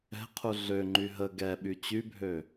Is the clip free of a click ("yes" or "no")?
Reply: no